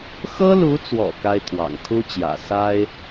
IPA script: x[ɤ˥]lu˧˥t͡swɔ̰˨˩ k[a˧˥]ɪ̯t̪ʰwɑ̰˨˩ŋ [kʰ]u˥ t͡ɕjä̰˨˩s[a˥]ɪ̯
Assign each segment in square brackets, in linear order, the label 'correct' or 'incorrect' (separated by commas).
correct, incorrect, correct, correct